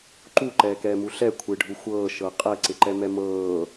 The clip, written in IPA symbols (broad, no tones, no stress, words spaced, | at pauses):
ǃuǃɛːkɛːmu ɬɛkʷʰɪːɖʱu xʷɤːʃɤ qʼɛǀɪǃɛmɛ mɤː